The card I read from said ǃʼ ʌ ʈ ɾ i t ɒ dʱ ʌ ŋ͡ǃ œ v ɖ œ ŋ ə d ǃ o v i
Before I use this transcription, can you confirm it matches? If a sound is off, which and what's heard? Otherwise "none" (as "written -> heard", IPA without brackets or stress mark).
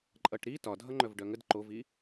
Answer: none